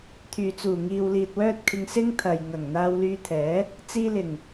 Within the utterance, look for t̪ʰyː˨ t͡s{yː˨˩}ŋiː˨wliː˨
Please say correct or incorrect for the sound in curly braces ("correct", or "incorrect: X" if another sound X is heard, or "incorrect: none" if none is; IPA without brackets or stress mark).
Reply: incorrect: uː˨˩